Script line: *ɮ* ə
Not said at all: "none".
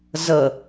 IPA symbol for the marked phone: z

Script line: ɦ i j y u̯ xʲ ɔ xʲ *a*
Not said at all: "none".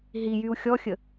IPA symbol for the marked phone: ə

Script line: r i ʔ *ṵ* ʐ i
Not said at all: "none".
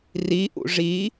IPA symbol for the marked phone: ṵ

